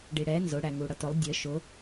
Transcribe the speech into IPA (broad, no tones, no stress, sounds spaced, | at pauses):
ɖ i ɽ ɛ n z ʊ ɽ æ ŋ u ɽ ʌ t ʊ lˠ dʲ ə ʃ ʊ